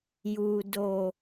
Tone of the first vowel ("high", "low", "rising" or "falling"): low